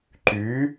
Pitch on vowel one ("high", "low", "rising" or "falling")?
rising